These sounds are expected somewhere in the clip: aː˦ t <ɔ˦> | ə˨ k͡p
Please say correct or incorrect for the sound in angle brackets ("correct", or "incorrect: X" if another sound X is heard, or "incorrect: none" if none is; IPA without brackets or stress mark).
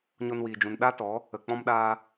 incorrect: ɔ˨˦